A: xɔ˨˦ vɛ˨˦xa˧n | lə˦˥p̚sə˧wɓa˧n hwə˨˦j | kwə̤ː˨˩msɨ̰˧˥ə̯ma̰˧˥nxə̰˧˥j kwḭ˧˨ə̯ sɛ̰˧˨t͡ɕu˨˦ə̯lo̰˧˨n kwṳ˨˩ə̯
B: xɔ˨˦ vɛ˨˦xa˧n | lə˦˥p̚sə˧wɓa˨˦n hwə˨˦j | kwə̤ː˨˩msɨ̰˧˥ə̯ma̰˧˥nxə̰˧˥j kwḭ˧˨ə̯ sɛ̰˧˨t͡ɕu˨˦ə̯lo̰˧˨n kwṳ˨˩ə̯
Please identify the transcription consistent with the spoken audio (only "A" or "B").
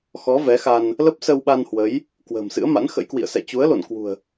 A